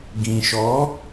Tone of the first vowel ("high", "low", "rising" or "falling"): low